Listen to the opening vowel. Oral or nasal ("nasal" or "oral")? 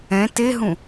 nasal